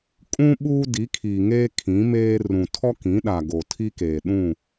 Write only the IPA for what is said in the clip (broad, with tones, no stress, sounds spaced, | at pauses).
kʼ ũ˦ ɓ uː˦ d i˨˦ kʰ iː˨ ŋ eː˦ kʰ ĩ˨˦ m eː˦ r ũ˨ tʰ ɔ˦ k ĩ˨˦ ɗ a˨ ɡ o˨ tʰ i˦ k eː˨ ɗ ũ˦˨